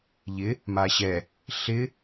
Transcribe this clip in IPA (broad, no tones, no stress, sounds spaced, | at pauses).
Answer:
ʎ ɪ | m a ɕ ɛ | ɬ ɪ